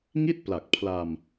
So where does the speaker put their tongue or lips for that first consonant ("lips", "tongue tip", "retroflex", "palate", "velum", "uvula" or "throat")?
velum